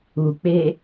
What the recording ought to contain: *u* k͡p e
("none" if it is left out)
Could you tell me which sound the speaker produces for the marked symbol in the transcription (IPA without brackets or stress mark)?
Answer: u